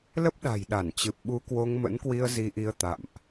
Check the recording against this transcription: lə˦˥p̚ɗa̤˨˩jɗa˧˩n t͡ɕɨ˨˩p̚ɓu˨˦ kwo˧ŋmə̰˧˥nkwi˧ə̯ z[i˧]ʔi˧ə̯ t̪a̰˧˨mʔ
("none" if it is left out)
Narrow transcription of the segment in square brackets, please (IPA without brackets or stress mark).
i˧